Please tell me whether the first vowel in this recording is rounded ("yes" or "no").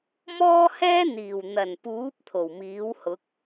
yes